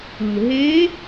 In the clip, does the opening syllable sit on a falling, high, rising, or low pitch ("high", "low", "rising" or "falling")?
low